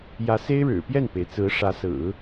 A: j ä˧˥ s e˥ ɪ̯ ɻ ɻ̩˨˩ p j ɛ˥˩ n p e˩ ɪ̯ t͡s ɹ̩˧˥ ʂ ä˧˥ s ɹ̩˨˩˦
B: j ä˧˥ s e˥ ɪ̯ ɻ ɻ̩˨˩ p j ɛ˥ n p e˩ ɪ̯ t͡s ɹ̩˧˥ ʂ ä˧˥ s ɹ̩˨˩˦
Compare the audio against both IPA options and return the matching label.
A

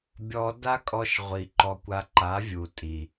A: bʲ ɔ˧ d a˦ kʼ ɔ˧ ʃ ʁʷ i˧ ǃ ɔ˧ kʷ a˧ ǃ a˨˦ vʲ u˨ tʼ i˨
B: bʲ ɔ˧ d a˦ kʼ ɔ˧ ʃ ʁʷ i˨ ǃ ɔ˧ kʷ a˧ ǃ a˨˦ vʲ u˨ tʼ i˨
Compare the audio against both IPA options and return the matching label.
B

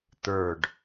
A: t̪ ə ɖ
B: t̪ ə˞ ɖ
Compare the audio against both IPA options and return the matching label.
B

